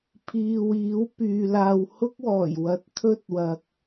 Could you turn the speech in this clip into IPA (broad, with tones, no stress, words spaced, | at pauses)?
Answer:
pʰiː˨wiː˨˥w pyː˨laː˧w hʊ˥k̚wɔː˨˩jwɐ˨˥t̚ t̪ʰɵ˥t̚wɐ˨k̚